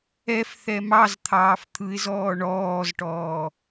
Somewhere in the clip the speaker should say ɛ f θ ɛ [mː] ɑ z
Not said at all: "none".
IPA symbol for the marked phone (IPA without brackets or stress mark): m